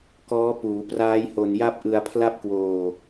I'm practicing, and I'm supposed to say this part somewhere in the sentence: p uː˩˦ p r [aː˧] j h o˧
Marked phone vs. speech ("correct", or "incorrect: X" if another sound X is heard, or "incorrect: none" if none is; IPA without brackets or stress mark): incorrect: aː˦˥